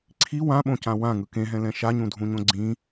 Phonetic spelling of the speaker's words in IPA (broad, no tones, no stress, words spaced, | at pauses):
ǀʰi wãɓõcã wãŋɯ kẽɦɛ̃lɛ̃ ʃaɲũdʱũɲõ ɡ͡ǀĩ